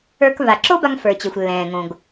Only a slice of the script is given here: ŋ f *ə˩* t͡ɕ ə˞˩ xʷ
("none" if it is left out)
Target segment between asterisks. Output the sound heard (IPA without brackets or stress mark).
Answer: ə˞˩